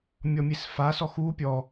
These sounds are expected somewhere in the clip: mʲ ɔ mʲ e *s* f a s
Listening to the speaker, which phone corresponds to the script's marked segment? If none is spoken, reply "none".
s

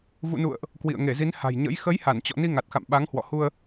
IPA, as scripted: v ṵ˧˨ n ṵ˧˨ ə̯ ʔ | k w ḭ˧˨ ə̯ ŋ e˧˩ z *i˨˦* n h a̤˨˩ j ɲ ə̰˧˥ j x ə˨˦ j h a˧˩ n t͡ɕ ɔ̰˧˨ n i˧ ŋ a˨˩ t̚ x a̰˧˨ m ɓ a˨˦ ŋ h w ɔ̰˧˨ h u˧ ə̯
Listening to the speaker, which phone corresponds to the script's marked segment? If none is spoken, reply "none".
i˨˦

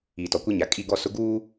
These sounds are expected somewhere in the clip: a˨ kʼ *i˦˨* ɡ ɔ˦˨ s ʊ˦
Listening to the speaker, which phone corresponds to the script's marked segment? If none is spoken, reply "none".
i˦˨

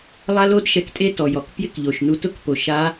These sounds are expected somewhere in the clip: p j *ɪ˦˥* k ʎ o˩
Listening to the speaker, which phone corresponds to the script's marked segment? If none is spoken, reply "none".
ɪ˦˥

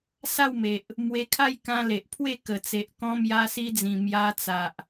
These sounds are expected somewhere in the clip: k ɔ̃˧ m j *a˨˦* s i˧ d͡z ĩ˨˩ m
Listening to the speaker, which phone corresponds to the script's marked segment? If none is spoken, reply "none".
a˧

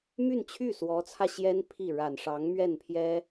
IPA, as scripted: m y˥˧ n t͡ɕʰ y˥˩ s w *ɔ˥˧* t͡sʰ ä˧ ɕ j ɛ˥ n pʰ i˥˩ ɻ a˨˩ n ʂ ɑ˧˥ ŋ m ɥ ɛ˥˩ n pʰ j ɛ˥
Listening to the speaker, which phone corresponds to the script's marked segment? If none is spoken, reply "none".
ɔ˧˥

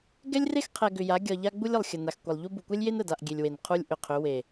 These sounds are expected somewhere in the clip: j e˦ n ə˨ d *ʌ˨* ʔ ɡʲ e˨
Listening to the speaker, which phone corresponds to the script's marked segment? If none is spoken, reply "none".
a˨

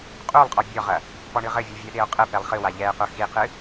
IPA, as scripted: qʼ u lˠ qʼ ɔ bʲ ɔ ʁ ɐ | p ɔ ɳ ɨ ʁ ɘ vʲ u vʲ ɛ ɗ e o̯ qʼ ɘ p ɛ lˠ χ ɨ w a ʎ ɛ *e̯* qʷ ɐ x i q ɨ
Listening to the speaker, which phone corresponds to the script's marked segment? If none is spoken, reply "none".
e̯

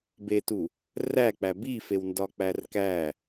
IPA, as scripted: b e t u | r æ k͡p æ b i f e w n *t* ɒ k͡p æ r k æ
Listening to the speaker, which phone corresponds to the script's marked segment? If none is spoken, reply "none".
d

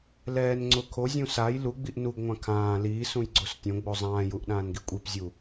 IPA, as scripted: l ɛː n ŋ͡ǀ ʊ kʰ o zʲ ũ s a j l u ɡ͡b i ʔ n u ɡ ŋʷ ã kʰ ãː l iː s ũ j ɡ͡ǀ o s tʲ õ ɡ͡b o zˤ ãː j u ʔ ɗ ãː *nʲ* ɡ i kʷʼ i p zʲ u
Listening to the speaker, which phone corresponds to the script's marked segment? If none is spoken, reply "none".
n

